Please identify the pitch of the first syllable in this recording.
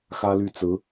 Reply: high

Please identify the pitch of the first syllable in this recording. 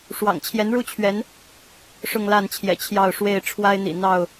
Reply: low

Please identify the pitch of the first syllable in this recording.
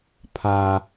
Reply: high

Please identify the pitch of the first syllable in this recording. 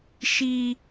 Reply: high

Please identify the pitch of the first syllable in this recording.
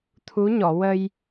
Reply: rising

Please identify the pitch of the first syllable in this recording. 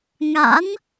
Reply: rising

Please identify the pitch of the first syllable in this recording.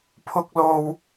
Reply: high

